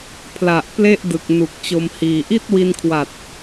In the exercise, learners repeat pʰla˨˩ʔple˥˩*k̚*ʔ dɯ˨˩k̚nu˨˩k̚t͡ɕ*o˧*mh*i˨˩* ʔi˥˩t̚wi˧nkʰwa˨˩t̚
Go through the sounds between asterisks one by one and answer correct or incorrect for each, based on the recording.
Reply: incorrect: none, correct, incorrect: iː˨˩

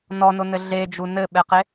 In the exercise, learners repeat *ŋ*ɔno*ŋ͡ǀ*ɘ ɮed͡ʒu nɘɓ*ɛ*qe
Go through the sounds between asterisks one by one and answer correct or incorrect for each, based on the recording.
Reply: incorrect: n, incorrect: n, correct

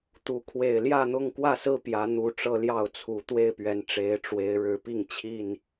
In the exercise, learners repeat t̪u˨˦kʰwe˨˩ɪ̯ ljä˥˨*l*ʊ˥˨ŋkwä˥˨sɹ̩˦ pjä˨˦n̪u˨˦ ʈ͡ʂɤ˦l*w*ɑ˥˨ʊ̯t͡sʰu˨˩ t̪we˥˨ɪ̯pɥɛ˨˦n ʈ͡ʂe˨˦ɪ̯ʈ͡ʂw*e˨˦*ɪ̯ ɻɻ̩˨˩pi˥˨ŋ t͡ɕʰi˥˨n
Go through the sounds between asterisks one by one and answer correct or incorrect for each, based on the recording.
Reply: incorrect: n̪, incorrect: j, correct

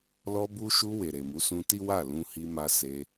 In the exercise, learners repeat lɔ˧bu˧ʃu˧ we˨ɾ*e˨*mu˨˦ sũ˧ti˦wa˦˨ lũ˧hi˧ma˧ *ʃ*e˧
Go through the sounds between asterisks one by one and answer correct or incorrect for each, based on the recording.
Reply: correct, incorrect: s

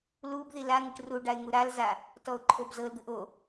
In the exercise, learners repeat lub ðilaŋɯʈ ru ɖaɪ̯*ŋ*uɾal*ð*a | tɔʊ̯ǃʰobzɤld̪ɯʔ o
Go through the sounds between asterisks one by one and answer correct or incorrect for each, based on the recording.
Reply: correct, incorrect: z

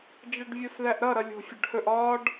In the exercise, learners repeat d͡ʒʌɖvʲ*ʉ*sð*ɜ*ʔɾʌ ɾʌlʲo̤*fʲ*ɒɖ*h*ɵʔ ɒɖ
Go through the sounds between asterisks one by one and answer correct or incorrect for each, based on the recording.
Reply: incorrect: u, incorrect: æ, correct, correct

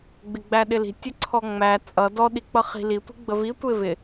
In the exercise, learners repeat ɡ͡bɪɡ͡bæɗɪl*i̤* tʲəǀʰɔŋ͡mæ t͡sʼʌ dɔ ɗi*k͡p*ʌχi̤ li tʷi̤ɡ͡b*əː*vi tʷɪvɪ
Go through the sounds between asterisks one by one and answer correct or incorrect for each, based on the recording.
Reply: correct, correct, incorrect: ə

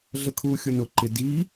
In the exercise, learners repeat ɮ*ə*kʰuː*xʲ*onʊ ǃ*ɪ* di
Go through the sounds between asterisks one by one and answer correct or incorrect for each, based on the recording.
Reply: correct, correct, correct

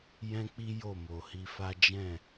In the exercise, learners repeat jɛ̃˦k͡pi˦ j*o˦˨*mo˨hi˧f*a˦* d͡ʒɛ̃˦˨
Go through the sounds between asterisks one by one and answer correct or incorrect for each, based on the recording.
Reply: correct, correct

